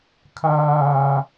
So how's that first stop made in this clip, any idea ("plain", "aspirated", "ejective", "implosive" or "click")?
aspirated